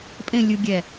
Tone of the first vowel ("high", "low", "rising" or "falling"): falling